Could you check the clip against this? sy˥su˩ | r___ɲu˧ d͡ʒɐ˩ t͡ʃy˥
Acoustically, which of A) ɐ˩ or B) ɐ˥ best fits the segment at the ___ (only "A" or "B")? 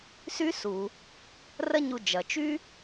B